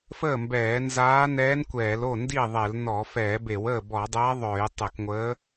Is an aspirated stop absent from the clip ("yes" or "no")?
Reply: yes